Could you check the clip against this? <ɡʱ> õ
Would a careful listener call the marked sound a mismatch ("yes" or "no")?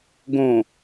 yes